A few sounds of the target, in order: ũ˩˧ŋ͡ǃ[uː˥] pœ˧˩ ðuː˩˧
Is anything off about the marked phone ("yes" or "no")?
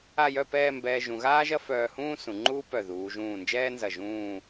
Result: no